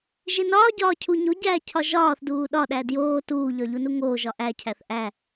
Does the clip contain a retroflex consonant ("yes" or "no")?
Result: no